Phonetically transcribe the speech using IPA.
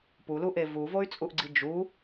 puluʔe vuvoy̯t͡sʼuʔɡ͡ǀi d͡ʒu

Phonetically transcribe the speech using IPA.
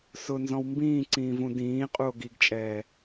sʊnzɔ̃w mbĩːǀĩːvũ dĩːqʼuo̯ ɡiɡt͡ʃʼɛː

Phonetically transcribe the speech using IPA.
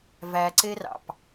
væǀerɑ̰p

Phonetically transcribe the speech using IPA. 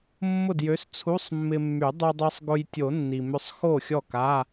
mːʊ˥˩djø˨˥st͡sʰu˧˥˧sˤ mːɪ˧mːy˨˩˦ dˤʏ˧dˤi˧sˤɡʊ˧j tʲo˨˩˦nːi˩mʏ˧sˤ xo˥˩xʲɔ˥˩ka˧˥˧

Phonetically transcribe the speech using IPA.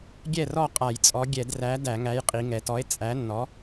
ɡʲɛ˥˩rɔ˥˩ qʼa˧˩˧jt͡sʼɔ˨˥ ɡʲɛ˧˩˧dræ˨˥ dæ˧˩˧ŋæ˨˥j qʼi˩˧ŋɛ˩˧tɔ˨˥e̯ t͡sʼæ˨˥nːɔ˨˥

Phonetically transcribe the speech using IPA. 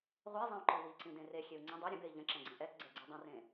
ʁʷizˤĩu̯ǃi wiǀĩdẽ rexʲeu̯ ŋ͡ǀə̃ dˤe ɾʲə̃bei̯ ʎə̃ǁɛ̃ɡ͡ǀẽ ʔɛtɡ͡ǀɛɡ͡ǀi dˤə̃rẽ

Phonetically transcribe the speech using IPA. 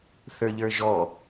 θə˞ʎə˞ʒɔ

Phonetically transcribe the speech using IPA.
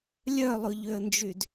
lʲœlˠʊʎøə̯nd͡ʒyd

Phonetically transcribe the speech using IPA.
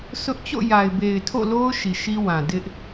sʊ˦ʔ t͡ɕo̰˦˨ja˨ɪ̯ be˨ɪ̯tʰo̰˦˨lo˦ʊ̯ ʃi˨ʃi˦wã˨ dɪ˦ʔ

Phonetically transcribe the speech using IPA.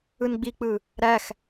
ɯnɡ͡bik͡pɯ | ɾæx

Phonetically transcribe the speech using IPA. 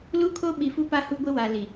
lu˦kʰo˦ɓi˨fu˦ pa˦hu˦ɡʷɪ˦ wa˨li˨

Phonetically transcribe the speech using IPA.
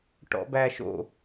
ʈɔ̰bæʃo̰

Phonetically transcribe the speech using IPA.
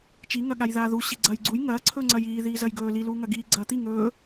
t͡ʃiŋɐɠaj ðaːðu ɕiɡ͡ǀɐːjɡ͡ǀuj ŋɐː ǀʰɵːŋ͡ǀɐjiːðiː zɐjɡɵː liluː ŋɐɡiː ɡ͡ǀɐːt̪i ŋɵː

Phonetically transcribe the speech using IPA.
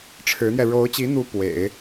ʈ͡ʂʰɻ̩˧˥n̪jɛ˧ ɻo˧˥ʊ̯t͡ɕi˧˥n̪u˧˥ pwḛ˨˩˦ɪ̯

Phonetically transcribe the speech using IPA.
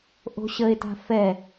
ʔo̤ɕəe̯ta̤ fɛ

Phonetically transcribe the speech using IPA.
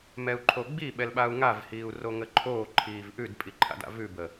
mɛu̯ǃʰoɡ͡bi ɓɛlɓau̯ŋav hiːu̯roŋəǃʰoː ǃʰiːvʔʉd pʼiǃʰa̰da̰vʉ bə

